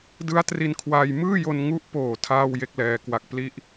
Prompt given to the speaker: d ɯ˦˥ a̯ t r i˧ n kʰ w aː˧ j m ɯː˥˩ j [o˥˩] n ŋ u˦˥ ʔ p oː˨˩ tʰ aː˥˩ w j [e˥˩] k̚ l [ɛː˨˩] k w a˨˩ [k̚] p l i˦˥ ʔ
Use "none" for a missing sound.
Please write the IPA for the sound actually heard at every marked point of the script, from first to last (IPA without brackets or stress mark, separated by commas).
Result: o˧, e˥˩, ɛː˧, k̚